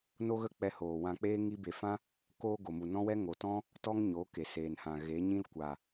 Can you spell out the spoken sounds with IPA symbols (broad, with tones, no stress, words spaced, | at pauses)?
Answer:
no˦ɣə˦k͡pɛ˧ hoː˨wã˧k͡peː˦ ŋi˦ be˨fã˦ | koː˧ɡo˨mu˨ nɔ̃˦wɛ˦ ŋo˨tɔ̃˦ | tɔ˦ŋɲo˨˦ ke˨seː˨nhã˨ ɣe˨˦ɲĩ˦lkʷa˨